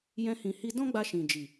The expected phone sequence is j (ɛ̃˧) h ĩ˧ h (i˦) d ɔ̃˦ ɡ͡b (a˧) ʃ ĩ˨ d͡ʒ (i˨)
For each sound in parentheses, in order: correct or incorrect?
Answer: incorrect: ɛ̃˦, correct, correct, correct

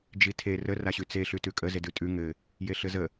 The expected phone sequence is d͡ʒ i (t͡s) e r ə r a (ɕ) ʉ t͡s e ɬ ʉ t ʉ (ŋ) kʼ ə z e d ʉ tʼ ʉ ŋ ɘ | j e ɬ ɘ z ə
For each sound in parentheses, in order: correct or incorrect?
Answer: incorrect: tʰ, correct, incorrect: none

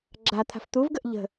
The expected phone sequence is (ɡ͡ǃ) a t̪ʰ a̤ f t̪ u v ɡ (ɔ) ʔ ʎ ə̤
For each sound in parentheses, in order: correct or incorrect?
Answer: incorrect: ɡ͡ǁ, incorrect: ə

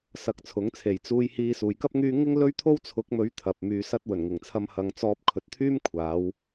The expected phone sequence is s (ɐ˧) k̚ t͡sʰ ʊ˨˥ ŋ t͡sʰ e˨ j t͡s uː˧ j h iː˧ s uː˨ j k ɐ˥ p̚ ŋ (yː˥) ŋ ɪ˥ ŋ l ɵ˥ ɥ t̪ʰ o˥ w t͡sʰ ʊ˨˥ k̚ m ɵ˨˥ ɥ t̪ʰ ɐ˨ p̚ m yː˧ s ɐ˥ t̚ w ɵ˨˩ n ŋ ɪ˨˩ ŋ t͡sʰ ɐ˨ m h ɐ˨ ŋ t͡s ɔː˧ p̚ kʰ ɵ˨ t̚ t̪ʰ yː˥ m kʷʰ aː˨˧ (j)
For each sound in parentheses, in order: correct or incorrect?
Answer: correct, correct, incorrect: w

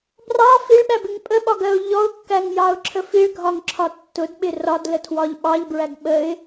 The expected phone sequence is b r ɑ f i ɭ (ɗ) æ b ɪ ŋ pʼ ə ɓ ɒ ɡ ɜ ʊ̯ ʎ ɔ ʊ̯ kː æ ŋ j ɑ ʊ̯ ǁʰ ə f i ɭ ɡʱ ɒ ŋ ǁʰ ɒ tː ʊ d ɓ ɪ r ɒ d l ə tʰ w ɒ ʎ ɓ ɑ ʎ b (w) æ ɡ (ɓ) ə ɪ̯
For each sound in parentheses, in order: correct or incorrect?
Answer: incorrect: ɓ, incorrect: ɹ, correct

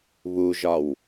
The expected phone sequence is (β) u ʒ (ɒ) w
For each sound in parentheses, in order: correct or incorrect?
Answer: correct, correct

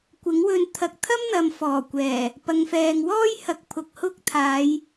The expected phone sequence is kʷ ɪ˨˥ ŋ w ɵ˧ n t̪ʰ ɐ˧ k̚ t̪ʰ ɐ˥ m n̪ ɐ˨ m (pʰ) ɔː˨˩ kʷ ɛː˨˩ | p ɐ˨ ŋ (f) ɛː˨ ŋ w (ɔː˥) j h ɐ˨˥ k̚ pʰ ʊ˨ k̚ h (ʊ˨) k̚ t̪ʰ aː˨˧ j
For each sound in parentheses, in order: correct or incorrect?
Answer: incorrect: f, correct, correct, incorrect: ʊ˥

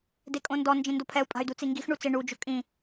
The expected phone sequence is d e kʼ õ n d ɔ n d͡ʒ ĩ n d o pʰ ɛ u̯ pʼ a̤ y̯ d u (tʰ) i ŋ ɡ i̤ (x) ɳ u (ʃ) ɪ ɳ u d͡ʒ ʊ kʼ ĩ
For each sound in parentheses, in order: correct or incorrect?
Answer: incorrect: t͡s, correct, incorrect: t͡s

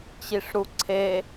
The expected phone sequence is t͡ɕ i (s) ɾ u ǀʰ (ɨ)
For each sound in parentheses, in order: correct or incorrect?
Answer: incorrect: ʂ, incorrect: e

